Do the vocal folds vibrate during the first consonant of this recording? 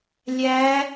yes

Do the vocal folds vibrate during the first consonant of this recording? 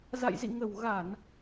yes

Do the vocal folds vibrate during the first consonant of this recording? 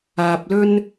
no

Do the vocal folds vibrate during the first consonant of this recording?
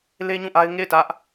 yes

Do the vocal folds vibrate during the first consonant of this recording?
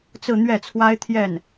no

